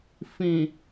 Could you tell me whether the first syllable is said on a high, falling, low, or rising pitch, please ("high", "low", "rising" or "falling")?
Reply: low